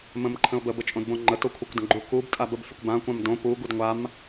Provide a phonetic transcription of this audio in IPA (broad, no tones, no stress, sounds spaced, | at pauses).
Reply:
m ə̃ m ǃʰ ə̃ ʊ̯ b ə b ə t͡ʃʼ õ d b õ ŋ͡ǃ ə t o kʷʰ ə kʷ d ə̃ ɡ͡ǃ u k u b tʼ a b ə b fʲ ə kʷ b ã kʷ ã m d õ p u ɡ u d ŋʷ a m